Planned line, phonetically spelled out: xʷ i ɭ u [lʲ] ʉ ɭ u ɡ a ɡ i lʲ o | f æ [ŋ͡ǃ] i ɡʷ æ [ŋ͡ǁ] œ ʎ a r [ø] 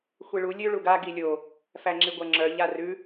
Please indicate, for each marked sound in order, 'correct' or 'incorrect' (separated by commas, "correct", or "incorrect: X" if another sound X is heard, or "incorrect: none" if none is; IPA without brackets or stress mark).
correct, incorrect: ŋ͡ǁ, correct, incorrect: ʉ